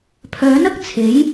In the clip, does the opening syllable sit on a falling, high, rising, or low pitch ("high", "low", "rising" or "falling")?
rising